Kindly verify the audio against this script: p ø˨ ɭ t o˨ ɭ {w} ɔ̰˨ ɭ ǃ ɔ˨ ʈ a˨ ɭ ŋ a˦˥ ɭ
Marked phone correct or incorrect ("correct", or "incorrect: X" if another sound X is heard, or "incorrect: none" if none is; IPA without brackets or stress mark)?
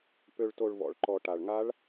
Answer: incorrect: v